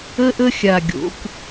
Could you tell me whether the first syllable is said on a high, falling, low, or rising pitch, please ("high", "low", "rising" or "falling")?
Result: high